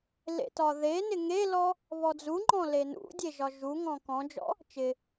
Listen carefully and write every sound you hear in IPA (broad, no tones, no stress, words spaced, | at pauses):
lḛtɒðenɪ ŋelɔ | βɔd͡zuŋ͡ǃɔ̃ lenṵdʲe ʒɒʒuŋɔ̃ kɔ̃d͡ʒɔ̰ | t͡ʃɪ